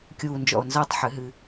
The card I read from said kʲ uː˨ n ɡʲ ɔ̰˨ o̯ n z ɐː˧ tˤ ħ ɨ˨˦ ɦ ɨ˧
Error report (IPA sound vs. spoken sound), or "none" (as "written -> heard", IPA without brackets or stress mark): ɡʲ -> d͡ʒ